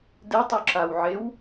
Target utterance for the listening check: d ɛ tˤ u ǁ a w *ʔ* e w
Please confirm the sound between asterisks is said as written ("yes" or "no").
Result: no